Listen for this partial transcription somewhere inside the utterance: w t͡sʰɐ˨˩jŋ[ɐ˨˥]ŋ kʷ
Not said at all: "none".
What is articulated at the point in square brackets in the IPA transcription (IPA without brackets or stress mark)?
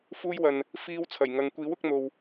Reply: ɐ˨˧